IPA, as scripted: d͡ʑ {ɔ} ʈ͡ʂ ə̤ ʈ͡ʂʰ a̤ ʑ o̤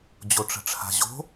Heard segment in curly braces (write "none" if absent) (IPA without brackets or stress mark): o